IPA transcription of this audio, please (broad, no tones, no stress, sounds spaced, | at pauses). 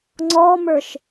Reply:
ŋ͡ǀ ɔ m ə˞ ʃ